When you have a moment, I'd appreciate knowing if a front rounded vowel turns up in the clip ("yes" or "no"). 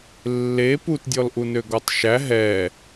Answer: yes